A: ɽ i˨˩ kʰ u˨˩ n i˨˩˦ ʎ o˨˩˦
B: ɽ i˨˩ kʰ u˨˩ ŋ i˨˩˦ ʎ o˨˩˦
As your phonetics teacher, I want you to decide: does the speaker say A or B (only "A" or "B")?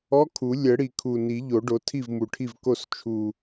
A